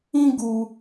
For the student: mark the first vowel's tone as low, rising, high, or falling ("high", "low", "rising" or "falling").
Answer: high